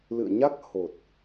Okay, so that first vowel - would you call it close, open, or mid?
close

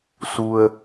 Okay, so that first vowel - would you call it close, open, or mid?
close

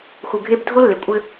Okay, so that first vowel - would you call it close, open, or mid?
close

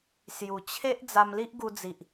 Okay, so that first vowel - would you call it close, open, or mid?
close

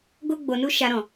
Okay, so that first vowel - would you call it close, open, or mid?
mid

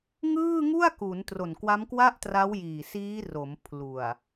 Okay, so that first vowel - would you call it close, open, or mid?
close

